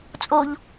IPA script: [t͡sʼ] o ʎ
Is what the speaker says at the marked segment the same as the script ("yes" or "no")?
yes